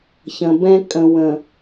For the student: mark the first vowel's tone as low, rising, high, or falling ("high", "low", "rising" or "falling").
low